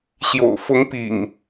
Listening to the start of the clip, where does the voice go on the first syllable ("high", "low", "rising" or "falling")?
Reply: low